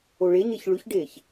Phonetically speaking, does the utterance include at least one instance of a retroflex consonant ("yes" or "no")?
yes